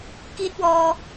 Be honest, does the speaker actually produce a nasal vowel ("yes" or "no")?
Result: no